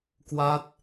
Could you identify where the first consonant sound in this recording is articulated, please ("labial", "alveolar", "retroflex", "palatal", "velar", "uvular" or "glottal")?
velar